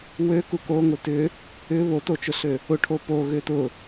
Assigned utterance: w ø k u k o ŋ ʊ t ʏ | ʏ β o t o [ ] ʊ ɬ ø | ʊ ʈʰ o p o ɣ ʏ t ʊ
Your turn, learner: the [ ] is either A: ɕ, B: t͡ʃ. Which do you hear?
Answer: B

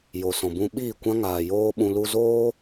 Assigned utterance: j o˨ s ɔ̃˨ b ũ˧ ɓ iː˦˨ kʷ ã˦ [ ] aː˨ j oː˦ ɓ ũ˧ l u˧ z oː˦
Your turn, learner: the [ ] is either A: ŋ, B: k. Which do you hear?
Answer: A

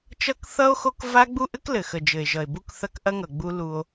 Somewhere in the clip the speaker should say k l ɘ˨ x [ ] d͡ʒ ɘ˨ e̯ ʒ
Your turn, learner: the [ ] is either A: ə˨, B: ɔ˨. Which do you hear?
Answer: A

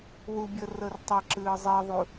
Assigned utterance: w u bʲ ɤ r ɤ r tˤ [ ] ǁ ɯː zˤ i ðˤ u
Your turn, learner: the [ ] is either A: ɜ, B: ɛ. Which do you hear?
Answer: B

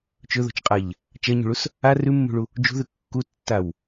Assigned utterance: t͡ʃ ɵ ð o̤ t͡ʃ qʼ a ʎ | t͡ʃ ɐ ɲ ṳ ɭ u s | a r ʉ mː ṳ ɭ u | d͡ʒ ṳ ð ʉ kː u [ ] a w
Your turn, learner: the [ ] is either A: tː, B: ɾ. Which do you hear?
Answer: A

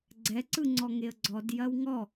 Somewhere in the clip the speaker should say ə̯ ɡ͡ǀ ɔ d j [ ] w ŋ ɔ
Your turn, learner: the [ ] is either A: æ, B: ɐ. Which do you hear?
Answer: B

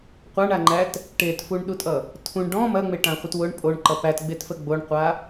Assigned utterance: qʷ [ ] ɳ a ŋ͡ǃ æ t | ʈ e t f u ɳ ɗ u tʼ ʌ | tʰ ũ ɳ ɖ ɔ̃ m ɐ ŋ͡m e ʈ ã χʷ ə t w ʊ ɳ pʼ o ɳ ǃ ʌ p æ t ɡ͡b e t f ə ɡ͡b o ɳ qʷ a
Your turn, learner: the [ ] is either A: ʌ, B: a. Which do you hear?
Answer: B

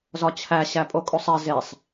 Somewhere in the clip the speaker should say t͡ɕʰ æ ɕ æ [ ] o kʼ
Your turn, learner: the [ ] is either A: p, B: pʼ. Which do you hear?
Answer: B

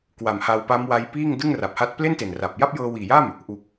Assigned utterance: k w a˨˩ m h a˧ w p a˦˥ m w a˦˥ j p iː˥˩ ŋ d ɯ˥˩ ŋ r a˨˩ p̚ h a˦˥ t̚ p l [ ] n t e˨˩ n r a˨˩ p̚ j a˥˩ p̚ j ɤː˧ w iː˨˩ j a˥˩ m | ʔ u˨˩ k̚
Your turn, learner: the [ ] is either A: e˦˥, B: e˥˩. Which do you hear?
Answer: B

